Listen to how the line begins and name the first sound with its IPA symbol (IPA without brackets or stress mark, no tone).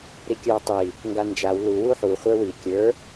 ɾ